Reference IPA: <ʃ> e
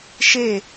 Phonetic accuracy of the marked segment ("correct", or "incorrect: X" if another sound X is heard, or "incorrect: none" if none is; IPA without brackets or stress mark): correct